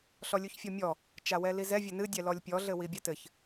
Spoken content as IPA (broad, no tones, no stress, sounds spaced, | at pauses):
ɬ ɔ lʲ u ç fʲ ɔ mʲ ɔ | t͡ʃ a w ɛ l i z ɛ vʲ ɘ n ɨ dʲ ɛ l ɔ lʲ pʲ ɔ ɮ ɘ w i bʲ a t ɘ ç